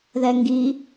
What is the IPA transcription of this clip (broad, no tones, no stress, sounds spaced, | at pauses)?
ð ɛ ŋ ɡ i